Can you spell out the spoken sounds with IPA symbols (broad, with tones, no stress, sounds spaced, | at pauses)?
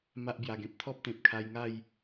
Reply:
m a˦ ʔ b j a˧ ɡ ẽ˨ p̚ t̪ʰ ɔ˦ p̚ t̪ ẽ˨ p̚ kʰ a˧ j ŋ a˥˧ j